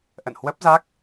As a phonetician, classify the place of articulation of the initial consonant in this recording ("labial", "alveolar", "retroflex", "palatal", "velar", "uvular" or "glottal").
glottal